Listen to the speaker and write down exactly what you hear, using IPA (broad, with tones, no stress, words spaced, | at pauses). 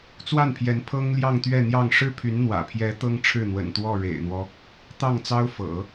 t͡swa˥˩npʰjɛ˧˥n pʰɤ˥ŋljɑ˥˧ŋ t̪ɥɛ˥˧n̪jɑ˥˧ŋ ʂɻ̩˥˩pʰy˧˥n n̪wä̰˨˩pʰjɛ˧˥ t̪ɤ˥ŋʈ͡ʂʰɻ̩˥˩ n̪wə̰˨˩nt̪wɔ˥˩ ɻḛ˨˩ɪ̯n̪wɔ˦ | t̪ɑ˥˩ŋt͡sɑ˥ʊ̯fɤ̰˨˩˦